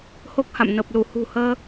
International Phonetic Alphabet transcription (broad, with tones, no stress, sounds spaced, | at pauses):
h o˦˥ k̚ h a̰˧˨ m n ə˨˩ p̚ l u˧˩ h ṳ˨˩ h əː˧